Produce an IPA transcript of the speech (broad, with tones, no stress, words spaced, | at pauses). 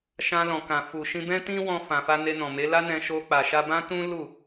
ʃã˧lɔ̃˨kã˨ fu˨ ʃĩ˧bɛ̃˦ tĩ˦wɔ̃˧ fã˨fa˧ ne˧nɔ̃˨me˨˦ la˦nɛ̃˧ ʃo˧k͡pa˨ ʃa˧bã˦ tũ˦ lu˦˨